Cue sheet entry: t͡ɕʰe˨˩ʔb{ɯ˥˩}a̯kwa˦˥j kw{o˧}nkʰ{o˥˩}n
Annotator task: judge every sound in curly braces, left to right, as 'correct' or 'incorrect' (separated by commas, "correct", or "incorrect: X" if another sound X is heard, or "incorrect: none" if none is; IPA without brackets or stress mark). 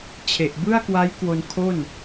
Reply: correct, correct, correct